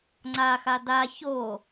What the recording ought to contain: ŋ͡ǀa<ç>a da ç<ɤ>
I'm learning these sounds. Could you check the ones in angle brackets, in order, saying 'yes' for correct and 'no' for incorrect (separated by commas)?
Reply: no, no